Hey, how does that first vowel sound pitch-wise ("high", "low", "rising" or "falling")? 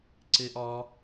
high